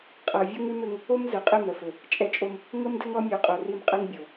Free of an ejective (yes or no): no